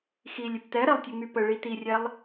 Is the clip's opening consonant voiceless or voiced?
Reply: voiceless